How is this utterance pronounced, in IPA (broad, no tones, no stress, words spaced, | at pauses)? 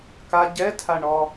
ka ɟɛtʰaɳɔ